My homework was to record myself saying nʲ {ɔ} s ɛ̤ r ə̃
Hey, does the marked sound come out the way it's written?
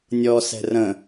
yes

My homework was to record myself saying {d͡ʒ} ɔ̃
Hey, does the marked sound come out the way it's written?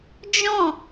yes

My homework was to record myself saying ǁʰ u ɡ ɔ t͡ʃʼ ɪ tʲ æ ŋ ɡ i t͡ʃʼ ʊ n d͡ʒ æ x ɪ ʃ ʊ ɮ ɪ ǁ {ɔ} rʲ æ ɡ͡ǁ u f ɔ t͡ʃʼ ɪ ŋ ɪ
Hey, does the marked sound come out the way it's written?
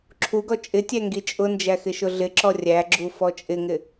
yes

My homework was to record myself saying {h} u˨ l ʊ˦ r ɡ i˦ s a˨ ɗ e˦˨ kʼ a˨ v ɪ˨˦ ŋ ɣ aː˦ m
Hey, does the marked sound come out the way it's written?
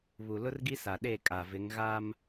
no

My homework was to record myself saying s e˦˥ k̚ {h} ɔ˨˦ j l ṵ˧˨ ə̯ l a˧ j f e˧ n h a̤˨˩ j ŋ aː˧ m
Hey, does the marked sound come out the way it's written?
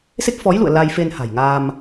no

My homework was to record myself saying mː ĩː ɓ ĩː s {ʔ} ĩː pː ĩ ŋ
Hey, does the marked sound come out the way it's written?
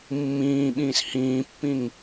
no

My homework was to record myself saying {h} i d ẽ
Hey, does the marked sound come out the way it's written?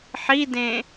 no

